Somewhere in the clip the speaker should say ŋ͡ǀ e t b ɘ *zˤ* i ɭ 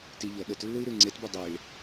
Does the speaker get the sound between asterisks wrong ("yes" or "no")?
yes